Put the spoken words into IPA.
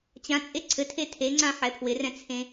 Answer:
t͡ɕ ã t͡sʼ e ǀʰ ɘ tʰ e tʰ e ŋ͡ǀ ã ħ ɛ pʰ w ɪ r ɛ̃ t͡sʰ ẽ

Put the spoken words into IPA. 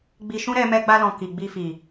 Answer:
ɡ͡b i˧ ʃ ũ˦ ɾ ɛ˧ m ɛ˧ ɡ͡b a˧ l ɔ̃˨ k i˨ ɡ͡b i˧ f i˨

